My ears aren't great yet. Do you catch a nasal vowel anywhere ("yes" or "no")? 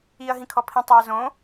yes